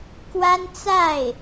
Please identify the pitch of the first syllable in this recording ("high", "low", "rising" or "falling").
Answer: high